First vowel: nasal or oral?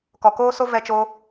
oral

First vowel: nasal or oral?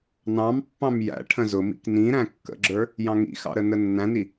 nasal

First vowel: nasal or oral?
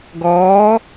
oral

